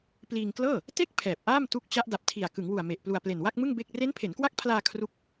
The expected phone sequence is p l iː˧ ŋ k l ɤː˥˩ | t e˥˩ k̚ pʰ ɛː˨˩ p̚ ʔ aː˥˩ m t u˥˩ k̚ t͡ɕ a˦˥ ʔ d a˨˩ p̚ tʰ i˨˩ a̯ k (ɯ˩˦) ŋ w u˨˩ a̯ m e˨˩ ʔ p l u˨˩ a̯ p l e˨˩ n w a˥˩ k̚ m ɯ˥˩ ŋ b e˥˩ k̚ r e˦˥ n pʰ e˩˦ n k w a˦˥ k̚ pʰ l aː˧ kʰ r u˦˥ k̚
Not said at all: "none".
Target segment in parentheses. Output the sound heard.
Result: ɯ˩˦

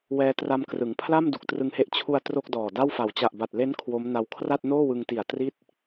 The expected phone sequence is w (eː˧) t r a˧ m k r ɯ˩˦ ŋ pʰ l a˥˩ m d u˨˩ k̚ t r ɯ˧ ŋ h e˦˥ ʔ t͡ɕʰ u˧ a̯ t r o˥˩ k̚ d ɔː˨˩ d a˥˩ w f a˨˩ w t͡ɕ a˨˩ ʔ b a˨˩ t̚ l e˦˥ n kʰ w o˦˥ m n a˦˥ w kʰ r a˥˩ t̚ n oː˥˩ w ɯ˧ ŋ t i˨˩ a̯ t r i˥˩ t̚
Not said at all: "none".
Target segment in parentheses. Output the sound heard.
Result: ɛː˧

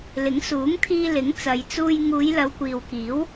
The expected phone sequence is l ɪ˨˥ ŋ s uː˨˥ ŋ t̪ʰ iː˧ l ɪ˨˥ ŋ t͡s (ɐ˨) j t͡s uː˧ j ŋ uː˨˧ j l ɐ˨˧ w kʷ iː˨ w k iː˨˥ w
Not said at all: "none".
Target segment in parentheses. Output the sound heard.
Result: ɐ˨˧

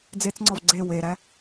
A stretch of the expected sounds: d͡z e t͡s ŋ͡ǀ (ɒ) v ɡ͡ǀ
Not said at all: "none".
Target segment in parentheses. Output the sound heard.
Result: ɒ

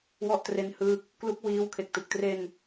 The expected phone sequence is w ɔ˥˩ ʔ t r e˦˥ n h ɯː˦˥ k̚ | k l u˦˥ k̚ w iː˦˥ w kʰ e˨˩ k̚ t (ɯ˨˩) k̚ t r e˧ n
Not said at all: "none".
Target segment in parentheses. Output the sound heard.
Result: ɯ˨˩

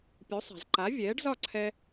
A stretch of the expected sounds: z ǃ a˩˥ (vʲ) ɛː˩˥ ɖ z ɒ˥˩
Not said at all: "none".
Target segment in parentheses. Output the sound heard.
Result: vʲ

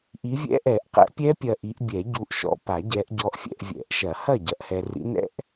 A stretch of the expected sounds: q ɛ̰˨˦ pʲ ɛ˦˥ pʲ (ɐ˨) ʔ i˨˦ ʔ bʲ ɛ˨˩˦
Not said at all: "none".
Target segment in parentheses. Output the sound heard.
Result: ɐ˨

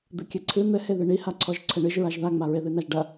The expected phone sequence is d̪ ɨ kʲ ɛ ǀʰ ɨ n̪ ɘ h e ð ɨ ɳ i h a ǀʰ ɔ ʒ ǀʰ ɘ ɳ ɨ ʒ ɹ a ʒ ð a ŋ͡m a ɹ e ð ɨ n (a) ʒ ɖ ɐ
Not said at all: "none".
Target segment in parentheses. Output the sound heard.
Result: a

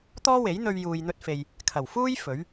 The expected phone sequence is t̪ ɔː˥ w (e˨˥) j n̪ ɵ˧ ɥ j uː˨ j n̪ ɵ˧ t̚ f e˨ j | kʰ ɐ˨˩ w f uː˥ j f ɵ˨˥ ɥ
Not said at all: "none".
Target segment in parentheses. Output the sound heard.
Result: e˨˥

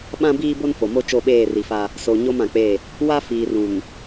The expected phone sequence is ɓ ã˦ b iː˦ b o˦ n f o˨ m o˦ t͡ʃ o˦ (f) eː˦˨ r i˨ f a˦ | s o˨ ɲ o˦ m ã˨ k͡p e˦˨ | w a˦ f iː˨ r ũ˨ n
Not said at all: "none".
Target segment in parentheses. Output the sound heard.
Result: ɓ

